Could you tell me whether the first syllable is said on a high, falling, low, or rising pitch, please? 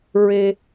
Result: high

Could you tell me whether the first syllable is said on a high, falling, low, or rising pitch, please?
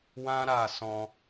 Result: high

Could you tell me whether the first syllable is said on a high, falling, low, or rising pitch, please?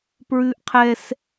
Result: high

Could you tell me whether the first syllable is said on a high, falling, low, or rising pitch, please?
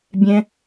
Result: high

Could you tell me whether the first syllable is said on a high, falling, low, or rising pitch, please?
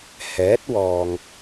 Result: rising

